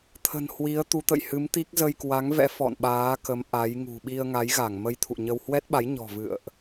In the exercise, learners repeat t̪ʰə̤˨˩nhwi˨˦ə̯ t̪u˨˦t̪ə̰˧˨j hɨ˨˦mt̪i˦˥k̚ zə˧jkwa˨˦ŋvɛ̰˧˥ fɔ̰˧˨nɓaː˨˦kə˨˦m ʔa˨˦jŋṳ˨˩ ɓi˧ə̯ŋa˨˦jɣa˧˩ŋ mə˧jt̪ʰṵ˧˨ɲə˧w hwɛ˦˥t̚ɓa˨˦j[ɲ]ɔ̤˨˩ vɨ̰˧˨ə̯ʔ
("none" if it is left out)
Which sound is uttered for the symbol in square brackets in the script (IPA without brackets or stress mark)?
ɲ